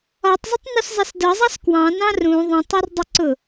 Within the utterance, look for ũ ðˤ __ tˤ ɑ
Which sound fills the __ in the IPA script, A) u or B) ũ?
B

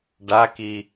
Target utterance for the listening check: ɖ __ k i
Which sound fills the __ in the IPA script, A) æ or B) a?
B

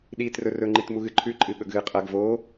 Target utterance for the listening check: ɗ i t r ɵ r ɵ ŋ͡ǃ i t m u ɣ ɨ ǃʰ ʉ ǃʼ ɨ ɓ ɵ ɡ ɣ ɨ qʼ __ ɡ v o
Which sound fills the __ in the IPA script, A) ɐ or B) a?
A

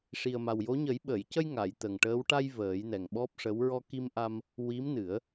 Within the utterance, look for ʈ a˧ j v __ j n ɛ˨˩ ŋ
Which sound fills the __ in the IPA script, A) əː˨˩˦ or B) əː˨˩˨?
A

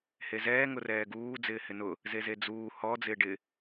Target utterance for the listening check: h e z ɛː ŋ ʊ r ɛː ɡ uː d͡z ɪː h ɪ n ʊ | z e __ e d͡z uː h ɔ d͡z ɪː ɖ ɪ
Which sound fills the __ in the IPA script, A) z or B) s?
A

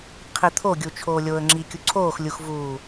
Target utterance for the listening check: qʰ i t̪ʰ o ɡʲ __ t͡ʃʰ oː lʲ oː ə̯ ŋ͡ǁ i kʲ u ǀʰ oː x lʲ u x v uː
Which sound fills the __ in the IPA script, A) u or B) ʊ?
A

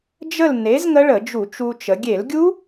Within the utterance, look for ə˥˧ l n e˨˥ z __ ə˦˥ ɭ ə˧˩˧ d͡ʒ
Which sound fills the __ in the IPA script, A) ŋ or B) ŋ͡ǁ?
A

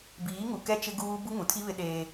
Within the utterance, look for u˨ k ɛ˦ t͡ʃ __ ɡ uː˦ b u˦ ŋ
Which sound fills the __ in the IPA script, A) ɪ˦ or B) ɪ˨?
A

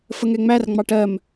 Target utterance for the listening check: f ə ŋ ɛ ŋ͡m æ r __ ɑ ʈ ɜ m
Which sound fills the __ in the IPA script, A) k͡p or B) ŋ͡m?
B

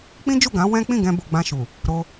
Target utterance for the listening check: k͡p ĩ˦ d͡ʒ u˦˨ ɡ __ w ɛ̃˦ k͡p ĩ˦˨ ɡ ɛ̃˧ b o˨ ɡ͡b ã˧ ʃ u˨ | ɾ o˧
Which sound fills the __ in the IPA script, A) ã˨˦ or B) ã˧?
A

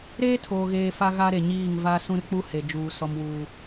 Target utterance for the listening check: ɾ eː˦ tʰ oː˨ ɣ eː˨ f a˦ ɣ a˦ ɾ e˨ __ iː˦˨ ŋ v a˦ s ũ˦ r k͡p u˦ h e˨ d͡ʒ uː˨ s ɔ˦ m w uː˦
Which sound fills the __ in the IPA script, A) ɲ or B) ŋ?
A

